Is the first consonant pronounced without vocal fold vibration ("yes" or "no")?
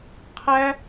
yes